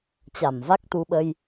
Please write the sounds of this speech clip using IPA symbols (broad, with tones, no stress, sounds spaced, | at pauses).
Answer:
t͡ɕ a˧˩ m v a˦˥ k̚ t̪ u˧ ɓ ə˧ j